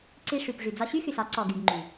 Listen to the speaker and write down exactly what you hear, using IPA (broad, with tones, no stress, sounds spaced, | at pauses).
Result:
ǀ i˧ ʂ y˨ p ʐ y˨ d͡z ɒ˧ ɕ y˦ x y˨ s ɒ˨˦ ǀ ɔ˧ ɡ y˧ ɡ ŋ͡ǃ y˨